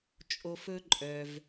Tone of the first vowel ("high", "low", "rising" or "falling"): high